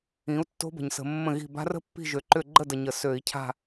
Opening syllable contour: rising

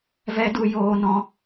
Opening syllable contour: high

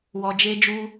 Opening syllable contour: low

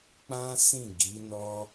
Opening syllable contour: high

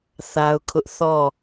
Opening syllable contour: high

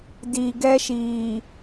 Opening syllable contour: low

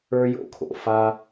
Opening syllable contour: high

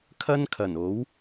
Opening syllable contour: high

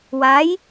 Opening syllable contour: rising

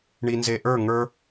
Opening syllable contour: low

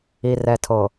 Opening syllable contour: low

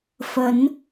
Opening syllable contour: rising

